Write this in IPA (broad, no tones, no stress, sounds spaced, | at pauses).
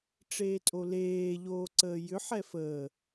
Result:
ʈ͡ʂ eː tʼ o l eː ʎ oː ǀ əː j ʏ ħ ɛ f əː